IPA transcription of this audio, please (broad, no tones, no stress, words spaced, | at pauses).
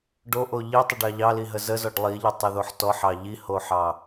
ɖoʔo ʎitˤəɖɑ ʎɑliɦə zəzɔɖ lˠiʎətˤiðoħ tɔħɑ ʎihoħɑ